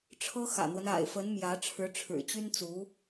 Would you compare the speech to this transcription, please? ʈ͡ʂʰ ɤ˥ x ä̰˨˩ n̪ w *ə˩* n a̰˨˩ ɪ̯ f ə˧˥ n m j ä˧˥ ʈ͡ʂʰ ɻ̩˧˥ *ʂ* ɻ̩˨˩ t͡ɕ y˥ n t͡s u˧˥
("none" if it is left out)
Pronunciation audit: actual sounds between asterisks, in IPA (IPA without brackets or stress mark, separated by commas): ə˦, ʈ͡ʂʰ